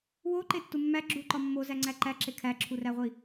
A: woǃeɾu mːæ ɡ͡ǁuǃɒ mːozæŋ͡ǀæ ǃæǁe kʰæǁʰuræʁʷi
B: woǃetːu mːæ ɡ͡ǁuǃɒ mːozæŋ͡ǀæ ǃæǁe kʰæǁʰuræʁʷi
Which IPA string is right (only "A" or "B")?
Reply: B